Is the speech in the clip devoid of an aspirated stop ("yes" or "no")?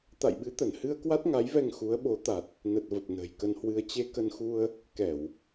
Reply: yes